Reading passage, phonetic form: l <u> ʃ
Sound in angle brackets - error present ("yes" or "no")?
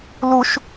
no